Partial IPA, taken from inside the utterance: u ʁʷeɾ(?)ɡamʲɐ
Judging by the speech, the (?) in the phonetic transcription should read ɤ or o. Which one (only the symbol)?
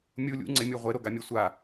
o